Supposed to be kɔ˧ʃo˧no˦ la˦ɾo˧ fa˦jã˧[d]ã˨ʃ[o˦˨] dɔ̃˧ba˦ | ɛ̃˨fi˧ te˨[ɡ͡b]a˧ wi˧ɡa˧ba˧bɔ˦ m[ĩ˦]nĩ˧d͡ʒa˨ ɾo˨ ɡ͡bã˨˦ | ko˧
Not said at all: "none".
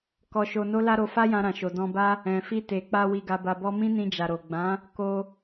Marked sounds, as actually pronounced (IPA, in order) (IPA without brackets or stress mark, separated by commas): ɾ, o˨, k͡p, ĩ˦